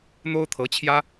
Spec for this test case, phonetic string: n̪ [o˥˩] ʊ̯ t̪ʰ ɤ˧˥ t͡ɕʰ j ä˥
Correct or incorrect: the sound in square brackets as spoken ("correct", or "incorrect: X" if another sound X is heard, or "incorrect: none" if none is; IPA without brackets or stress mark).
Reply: incorrect: o˥